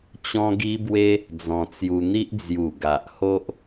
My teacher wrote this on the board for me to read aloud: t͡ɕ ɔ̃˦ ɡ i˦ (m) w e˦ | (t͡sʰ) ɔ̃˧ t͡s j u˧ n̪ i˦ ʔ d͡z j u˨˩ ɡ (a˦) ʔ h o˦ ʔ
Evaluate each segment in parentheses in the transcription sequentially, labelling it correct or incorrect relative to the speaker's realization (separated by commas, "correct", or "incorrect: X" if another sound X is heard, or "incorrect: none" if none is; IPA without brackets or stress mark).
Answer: incorrect: b, incorrect: d͡z, incorrect: a˨